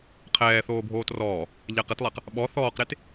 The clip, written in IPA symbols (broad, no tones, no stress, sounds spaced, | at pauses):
qʰ ɛː θ oː bʱ oː t r ɔː | ʎ ɛ q ɪ t lˠ ɛ q | ɓ ɔ θ ɔː q ɾ e t